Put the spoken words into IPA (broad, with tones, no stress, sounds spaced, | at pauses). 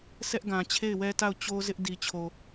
s ɛ˦ ʔ ɡ ã˨ t͡ɕʰ e˦˨ ɪ̯ w ɛ˦ t a˦˨ ʊ̯ t͡ɕ o˦ z ɪ˦ ʔ d i˨ t͡ɕʰ o˨